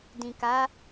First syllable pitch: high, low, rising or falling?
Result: low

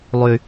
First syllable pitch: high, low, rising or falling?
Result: low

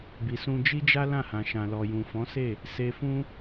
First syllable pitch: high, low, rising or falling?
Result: low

